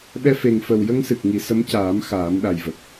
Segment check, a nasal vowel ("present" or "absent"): absent